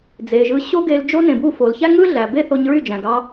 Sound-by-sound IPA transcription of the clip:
d͡z e˨ ʒ ɯ˧ ɕ o˦ ɡ e˧ l d͡ʒ o˦ n ẽ˨ b u˦˨ f o˨ l ç æ˦ ŋ ɯ˦ ɮ æ˨ b e˦ θ o˧ ɲ ɹ y˦˨ d͡ʒ æ̃˨ ɡ ɑ˧

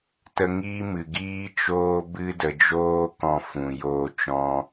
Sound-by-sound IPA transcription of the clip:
t ə˧ ŋ iː˦ m ɨ˨ ɡ iː˦ t͡ʃ oː˦ b ɨ˧ d ə˨ d͡ʒ oː˦ k ɔ̃˧ f ũ˨ j oː˧ t͡ʃ ɔ̃˧

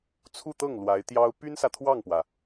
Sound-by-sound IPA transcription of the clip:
t͡sʰ u˥˧ t̪ ɤ˥˩ ŋ l w a˧˥ ɪ̯ t̪ j ɑ˥ ʊ̯ p y˥ n s ä˨ t̪ʰ w ɑ˥˩ ŋ p w ä˩

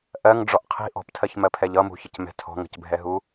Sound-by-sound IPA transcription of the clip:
ʔ ɜ ŋ ɖ͡ʐ ɔ ʔ qʰ i̤ ʔ ɔ̤ p tʰ ɜ ç m ɜ pʰ ɛ ʎ ʌ m ṳ ç ə c m ɛ̤ tʰ ɔ̤ ŋ ə̤ c bʱ ɛ ɦ u

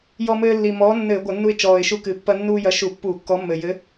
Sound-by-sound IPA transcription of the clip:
j ɔ˧ m ɘː˧ lː i˨˩ m ɔː˨˥ nː ɘː˧˩˧ ɡʷ ɐ˧˩˧ nː u˧ ɪ̯ t͡ʃ ɔː˨˩ ɪ̯ ʃ u˧ k ɨ˨˩ pː ɐ˧ nː uː˧ j ɐ˨˥ ʃ u˧˩˧ pː uː˧˩˧ kː ɔ˨˥ mː ɘ˨˩ j ɘ˨˥

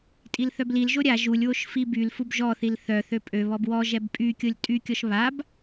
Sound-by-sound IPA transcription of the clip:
tʼ i l θ œ b l i l ʒ o ɾʲ a ʒ u lʲ w o ʃ f i b y l f u b ʒ ɔ θ i l θ œ θ ø pʼ ø β ɔ b w ɔ ʒ ɛ b pʼ y kʲ o lʲ tʼ y kʲ ɔ ʃ β a b

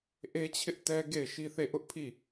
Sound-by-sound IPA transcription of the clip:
ʔ e˦ t͡ɕʰ ɪ˦ ʔ t ɛ˦ ɡ e˦˨ ɪ̯ ʃ i˦ θ e˦˨ ʔ ʊ˦ ʔ pʰ i˦˨

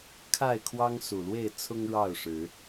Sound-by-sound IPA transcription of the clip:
kʰ a˥˨ ɪ̯ kʰ w ɑ˦ ŋ s u˨˩ l w e˥˨ ɪ̯ t͡sʰ ʊ˦ ŋ ɻ ɑ˥˨ ʊ̯ ʂ ɻ̩˨˦

